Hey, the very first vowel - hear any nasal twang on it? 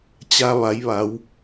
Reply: no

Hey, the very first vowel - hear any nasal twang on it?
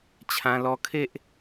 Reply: yes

